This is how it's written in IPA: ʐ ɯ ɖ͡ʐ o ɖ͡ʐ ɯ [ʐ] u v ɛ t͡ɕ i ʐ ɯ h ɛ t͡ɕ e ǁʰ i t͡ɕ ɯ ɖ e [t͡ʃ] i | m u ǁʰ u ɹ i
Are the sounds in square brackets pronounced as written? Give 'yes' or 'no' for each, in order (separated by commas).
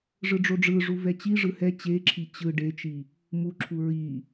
yes, yes